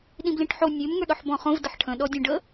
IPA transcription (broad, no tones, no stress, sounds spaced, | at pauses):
ɗ ĩ b l ĩ ʈ ħ o nʲ ø m ŋ ə˞ ɗ ɔ ħ b ɔ̃ χ õ v d ə ħ ʈʰ ə̃ ɗ ɔ dʲ õ ɖ ə